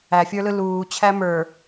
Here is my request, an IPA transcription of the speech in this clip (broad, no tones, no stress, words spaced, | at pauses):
æfʲə˞lɯ luːt͡ɕʰæ mə˞